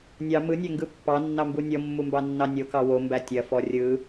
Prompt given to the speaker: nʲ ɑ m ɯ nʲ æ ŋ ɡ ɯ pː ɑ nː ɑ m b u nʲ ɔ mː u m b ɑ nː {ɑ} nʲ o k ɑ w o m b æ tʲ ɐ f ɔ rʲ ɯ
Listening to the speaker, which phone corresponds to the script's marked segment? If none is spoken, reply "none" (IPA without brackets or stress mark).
ɑ